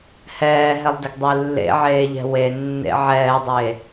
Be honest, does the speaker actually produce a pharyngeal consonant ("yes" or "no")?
yes